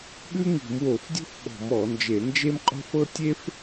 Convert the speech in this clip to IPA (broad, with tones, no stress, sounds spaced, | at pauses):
ɓ ʉ˥ ŋ i̤˧˩˧ m w o˧˩˧ f dʲ o̤˥ f ɓ ɔ̤˧˩˧ m ɔ˧˩˧ n d͡ʒ e˧˩˧ n d͡ʒ e˥ m qʼ o̤˥ f ɤ˥ tʲ e˥ f